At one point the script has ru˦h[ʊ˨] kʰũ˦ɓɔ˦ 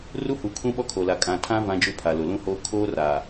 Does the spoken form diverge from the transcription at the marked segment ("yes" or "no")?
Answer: yes